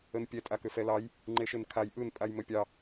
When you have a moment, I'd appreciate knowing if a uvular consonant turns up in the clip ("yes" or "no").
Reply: no